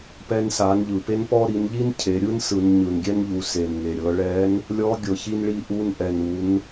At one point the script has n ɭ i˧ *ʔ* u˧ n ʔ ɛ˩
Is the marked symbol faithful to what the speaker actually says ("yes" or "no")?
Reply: yes